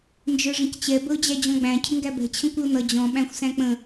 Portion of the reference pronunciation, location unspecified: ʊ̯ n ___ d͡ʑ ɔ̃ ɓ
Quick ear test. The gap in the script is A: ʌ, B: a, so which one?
A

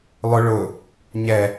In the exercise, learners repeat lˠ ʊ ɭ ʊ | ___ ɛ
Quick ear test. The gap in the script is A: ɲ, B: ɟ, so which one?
A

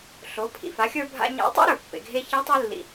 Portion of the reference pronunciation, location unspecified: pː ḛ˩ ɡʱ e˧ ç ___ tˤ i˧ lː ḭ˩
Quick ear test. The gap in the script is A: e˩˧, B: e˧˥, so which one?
B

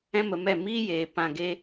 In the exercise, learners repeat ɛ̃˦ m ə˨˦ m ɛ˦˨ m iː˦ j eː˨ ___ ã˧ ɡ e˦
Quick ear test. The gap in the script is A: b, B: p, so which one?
B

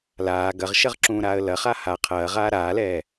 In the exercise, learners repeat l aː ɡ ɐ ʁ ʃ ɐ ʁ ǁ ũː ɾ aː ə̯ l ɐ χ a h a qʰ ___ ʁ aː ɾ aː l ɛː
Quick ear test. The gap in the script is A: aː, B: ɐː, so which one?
B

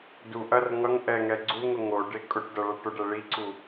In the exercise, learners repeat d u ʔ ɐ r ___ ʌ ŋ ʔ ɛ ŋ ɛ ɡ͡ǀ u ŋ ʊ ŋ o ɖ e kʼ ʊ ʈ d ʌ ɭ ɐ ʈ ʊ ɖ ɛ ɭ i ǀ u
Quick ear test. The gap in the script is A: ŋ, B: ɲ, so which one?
A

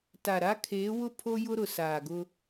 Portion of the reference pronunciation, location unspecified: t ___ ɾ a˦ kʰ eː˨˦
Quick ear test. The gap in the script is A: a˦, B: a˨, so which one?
B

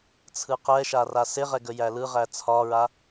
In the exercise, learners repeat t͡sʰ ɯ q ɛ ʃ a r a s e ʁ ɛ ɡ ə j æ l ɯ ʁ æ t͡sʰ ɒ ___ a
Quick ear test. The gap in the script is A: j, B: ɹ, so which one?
B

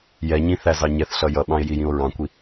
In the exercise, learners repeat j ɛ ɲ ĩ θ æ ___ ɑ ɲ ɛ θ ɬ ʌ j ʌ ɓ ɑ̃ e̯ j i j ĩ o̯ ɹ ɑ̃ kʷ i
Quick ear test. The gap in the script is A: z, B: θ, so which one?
A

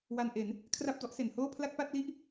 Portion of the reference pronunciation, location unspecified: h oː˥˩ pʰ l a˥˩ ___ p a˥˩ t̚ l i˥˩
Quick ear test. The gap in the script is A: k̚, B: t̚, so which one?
A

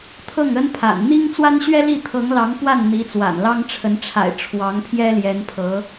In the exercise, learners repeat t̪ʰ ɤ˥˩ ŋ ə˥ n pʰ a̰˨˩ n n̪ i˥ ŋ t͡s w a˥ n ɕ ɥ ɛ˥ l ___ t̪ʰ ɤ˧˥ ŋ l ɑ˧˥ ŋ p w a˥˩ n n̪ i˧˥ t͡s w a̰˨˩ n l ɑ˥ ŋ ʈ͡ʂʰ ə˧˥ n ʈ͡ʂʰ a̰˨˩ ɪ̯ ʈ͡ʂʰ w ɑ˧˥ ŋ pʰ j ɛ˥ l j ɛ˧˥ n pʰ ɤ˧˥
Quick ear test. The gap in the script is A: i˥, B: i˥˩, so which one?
B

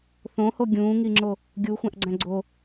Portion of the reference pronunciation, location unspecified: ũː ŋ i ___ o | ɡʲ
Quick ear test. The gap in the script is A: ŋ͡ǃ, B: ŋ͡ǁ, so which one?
B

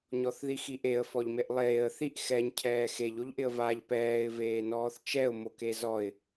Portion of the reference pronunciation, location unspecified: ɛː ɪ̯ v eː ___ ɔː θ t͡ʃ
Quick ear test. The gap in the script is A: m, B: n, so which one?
B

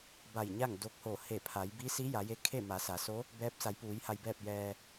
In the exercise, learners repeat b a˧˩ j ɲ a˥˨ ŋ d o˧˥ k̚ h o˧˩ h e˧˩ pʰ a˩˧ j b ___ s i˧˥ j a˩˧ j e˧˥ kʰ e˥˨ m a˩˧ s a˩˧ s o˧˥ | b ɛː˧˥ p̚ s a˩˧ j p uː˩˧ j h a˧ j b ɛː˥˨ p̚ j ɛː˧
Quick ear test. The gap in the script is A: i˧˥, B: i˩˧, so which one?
A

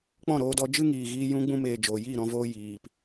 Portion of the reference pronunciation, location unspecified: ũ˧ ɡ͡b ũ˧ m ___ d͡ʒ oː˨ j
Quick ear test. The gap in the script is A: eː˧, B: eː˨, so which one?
B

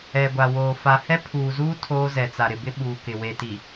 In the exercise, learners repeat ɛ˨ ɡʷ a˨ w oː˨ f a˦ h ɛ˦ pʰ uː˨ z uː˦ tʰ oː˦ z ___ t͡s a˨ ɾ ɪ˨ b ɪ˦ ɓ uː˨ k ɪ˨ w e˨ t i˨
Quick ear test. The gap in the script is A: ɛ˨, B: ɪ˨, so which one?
A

